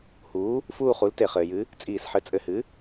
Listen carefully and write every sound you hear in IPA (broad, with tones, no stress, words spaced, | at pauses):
huː˩˥ | fuː˦˨χu˩˥lte˧˩˧ χɘː˩jɨ˩˥ | t͡sʼiː˧˩˧sħɘ˩˥ t͡sʼɘ˧˩˧hɨ˩˥